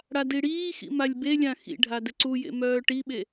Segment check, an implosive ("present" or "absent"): present